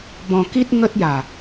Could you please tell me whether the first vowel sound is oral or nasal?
nasal